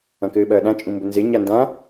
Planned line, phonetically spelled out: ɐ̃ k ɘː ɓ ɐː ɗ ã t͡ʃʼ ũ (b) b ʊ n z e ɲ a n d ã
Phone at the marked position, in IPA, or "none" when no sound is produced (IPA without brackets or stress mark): m